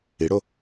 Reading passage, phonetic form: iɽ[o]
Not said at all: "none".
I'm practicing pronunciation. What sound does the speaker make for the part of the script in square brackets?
o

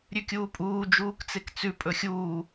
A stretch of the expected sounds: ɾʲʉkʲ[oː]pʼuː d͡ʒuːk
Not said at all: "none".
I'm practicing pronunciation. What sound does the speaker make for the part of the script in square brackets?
uː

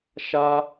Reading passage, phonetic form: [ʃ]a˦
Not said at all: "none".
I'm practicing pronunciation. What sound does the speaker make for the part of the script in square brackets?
ʃ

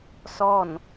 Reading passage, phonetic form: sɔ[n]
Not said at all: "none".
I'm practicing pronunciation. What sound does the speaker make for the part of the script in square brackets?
n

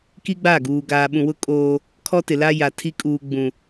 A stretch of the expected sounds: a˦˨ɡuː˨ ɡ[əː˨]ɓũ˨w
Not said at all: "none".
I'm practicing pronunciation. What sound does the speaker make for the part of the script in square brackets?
aː˨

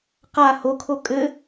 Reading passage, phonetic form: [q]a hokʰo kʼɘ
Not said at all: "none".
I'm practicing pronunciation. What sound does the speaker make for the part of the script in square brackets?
q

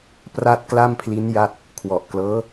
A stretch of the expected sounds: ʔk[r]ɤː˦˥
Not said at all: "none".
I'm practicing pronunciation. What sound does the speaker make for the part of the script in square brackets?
l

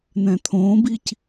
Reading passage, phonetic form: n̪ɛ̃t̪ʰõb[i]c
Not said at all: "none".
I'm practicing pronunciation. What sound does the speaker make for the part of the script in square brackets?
i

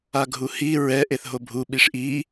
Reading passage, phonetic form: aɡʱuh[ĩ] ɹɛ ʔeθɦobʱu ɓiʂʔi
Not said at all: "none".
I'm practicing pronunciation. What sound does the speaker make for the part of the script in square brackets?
i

